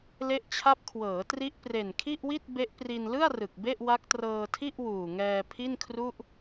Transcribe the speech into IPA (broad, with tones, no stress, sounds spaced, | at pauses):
l e˦˥ ʔ t͡ɕʰ a˦˥ p̚ kʰ w ɤː˩˦ t r i˦˥ ʔ p r e˨˩ n kʰ i˥˩ ʔ w i˥˩ t̚ b e˦˥ ʔ p r i˧ n l ɯ˥˩ a̯ r ɯ˨˩ k̚ b e˥˩ ʔ w a˦˥ k̚ t r ɤː˧ tʰ i˥˩ ʔ w uː˨˩ ŋ ɛː˧ pʰ i˥˩ n kʰ r u˥˩ ʔ